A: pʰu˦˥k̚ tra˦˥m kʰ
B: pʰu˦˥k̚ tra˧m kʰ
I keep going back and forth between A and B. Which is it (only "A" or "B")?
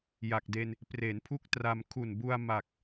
B